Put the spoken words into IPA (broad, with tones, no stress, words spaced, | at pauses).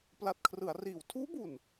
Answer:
pla˨˩t̚kʰrɯ˩˦a̯riː˩˦w tʰuː˦˥bu˨˩n